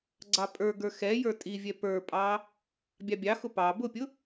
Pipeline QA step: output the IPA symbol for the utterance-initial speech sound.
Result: ɡ͡ǀ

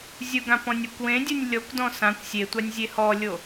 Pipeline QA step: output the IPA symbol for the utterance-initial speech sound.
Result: zʲ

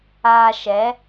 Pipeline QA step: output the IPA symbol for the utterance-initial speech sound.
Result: aː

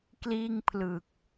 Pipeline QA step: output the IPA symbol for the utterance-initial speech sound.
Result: k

